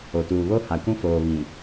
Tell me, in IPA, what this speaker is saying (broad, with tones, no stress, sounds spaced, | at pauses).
o˨ t uː˨ β o˦ h a˨ kʷ ũ˦ f oː˨ β ĩ˨